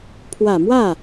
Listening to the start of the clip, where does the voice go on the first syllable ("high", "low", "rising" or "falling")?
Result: low